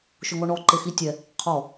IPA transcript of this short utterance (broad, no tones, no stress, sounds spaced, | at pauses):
ʃ ʊ ŋ ɔ ɳ ɔ ǃ e x i tʲ ɛ | qʰ ɔ